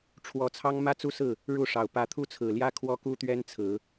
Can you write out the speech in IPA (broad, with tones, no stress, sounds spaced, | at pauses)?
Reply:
ʈ͡ʂʰ w ɔ˨˦ t͡sʰ ɑ˦ ŋ m ä˦ t͡s u˦ s ɹ̩˥˨ | ɻ u˥˨ ʂ ɑ˨˩ ʊ̯ p ä˨˦ t̪ʰ u˦ t͡sʰ ɹ̩˨˩ l j ä˦ kʰ w ɔ˦ k u˦ t̪ ɥ ɛ˦ n t͡sʰ ɹ̩˨˦